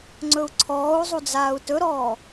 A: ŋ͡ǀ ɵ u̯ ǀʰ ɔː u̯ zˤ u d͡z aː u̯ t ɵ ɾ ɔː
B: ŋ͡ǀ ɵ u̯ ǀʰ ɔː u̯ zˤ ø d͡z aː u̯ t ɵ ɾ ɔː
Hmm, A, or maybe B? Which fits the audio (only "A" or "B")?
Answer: A